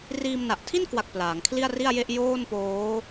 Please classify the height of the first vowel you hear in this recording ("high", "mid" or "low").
high